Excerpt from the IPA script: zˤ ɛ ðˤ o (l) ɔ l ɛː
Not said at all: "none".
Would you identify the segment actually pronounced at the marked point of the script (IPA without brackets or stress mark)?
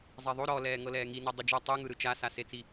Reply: ɾ